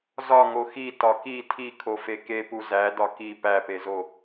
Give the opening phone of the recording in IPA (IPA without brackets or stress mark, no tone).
z